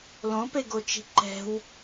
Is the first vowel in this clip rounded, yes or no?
yes